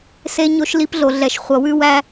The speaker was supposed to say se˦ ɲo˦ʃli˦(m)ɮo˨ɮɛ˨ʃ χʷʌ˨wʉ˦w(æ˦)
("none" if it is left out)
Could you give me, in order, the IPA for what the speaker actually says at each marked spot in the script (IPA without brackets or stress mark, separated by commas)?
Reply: p, æ˦